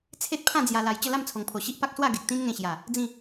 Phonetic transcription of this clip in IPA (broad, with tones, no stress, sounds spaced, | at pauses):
t͡sʰ e˦ t̚ pʰ ã˥˧ d͡z j a˧ l a˨˩ j t͡ɕ ə˥˧ l a˥˧ m t͡sʰ o˨˩ ŋ pʰ o˨˩ ɕ i˦ ʔ p a˦ k̚ s w a˥˧ ɡ e˨ k̚ t̪ ĩ˦ n ŋ ẽ˧ ɕ j a˨˩ | d͡z ĩ˥˧